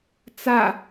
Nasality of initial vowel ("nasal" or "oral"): oral